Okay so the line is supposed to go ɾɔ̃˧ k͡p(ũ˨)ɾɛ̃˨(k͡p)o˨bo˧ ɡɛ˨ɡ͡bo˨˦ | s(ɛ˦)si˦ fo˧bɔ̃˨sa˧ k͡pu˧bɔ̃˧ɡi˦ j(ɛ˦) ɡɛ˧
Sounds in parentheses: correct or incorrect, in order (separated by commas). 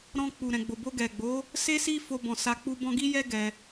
incorrect, incorrect, incorrect, correct